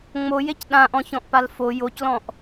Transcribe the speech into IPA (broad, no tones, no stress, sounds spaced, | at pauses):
ŋ͡m o j e c ɗ ã ʔ ɔ̃ ç ɔ̃ ʔ p a l f o j o c l ɔ̃ ʔ